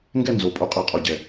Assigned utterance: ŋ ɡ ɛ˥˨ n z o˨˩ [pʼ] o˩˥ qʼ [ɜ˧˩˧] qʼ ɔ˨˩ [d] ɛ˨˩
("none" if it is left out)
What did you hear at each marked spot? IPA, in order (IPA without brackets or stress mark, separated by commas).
pʼ, ɜ˧˩˧, ɟ